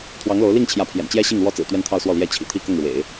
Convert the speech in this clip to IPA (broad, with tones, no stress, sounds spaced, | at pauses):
t̪ʰ w ɑ˧˥ ŋ l o˧˥ ʊ̯ l i˥˩ ŋ t͡ɕʰ j ä˧˥ pʰ j ɛ̰˨˩ n t͡ɕ j ɛ˥ ɕ i˥˩ ŋ l w ɔ˥ t͡s ɹ̩˨˩ t̪ ɥ ɛ˥˧ n t̪ʰ ɑ˥˧ ʊ̯ s w ɔ˥˩ l j ɛ˥ t͡ɕʰ ḭ˨˩ t̪ʰ i˥ k ʊ˥˩ ŋ ɻ w ḛ˨˩˦ ɪ̯